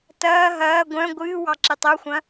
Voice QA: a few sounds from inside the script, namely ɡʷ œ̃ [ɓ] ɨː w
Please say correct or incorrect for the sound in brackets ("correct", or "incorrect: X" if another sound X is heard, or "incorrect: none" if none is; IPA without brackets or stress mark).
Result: incorrect: ɡʷ